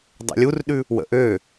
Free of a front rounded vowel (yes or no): no